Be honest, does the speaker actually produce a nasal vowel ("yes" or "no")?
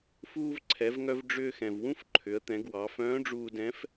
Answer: yes